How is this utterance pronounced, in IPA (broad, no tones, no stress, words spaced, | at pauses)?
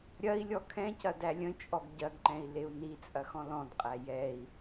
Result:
ɾʲɐi̯ lʲɔkʰɛ̃cɐ dælʲə̃t͡ʃʼɔɡ ɟɐɡǃɛ̃i̯ leu̯nit͡sʼɐx ɔ̃lɔ̃dqʼæ jɛi̯